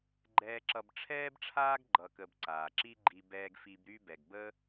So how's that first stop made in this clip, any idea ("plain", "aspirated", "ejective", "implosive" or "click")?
click